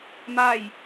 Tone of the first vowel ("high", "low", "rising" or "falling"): falling